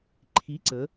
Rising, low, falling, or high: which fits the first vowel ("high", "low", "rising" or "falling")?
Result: rising